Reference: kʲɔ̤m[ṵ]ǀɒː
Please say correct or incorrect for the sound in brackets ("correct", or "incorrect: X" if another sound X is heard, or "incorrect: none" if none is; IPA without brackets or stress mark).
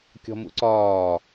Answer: correct